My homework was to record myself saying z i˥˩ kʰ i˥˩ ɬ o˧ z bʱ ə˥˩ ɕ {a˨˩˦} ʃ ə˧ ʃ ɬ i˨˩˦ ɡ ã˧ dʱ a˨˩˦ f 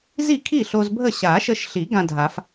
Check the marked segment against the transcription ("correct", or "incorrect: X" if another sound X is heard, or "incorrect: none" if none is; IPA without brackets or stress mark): correct